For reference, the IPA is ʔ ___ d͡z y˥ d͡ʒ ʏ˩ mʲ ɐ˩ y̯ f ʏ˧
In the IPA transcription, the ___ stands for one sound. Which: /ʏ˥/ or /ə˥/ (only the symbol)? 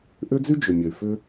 ʏ˥